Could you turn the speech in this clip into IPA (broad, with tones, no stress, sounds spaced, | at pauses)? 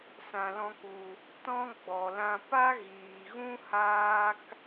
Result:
s ã˧ l ɔ̃˦ k u˧ | t ɔ̃˦ ɡ͡b ɔ˨ l ã˧ p a˦ ɣ iː˨ ɣ ũ˦ h aː˦ k